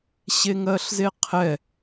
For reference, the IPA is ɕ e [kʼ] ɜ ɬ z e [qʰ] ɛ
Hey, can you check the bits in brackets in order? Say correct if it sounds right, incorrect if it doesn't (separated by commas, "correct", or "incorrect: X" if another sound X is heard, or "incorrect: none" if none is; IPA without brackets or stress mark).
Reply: incorrect: ŋ, correct